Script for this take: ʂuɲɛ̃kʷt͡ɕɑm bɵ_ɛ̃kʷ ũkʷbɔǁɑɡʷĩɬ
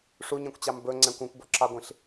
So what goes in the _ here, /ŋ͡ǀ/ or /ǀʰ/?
ŋ͡ǀ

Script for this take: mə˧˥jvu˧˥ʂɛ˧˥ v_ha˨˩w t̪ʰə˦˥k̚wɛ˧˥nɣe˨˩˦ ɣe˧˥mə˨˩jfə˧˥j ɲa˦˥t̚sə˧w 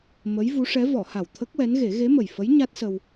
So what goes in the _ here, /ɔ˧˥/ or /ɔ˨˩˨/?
ɔ˨˩˨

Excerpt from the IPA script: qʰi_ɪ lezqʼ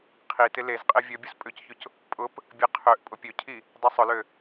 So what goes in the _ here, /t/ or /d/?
t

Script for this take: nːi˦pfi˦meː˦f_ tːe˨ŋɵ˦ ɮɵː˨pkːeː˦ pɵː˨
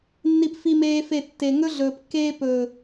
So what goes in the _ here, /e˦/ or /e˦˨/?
e˦˨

